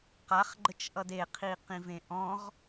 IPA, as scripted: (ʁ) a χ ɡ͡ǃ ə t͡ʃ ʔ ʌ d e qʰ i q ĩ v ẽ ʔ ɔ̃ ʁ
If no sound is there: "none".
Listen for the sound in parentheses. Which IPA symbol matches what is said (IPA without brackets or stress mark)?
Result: q